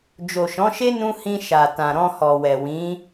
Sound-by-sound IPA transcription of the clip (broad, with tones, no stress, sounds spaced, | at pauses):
d͡ʒ o˨ ʃ ɔ̃˨˦ ʃ e˦ n ũ˧ h ĩ˧ ʃ a˨ t ã˨ ɾ ɔ̃˧ h ɔ˨ w ɛ˨ w ĩ˨˦